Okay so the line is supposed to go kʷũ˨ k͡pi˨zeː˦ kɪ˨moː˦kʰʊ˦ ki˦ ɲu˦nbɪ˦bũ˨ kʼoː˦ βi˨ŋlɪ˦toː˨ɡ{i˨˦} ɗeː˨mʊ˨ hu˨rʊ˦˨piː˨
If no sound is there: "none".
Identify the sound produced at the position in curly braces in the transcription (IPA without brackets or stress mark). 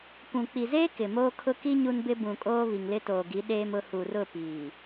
i˨˦